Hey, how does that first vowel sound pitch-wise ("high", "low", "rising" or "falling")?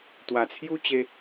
low